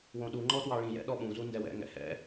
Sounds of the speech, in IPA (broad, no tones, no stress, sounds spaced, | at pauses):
w õ ɗ u ŋ͡ǃ ɔ t w ɑ ɭ ĩ j ɛ̰ ɗ ɔ ɓ ũ z u n d ɛ w ɛ̰ ŋ ɛ̰ h ɛ̰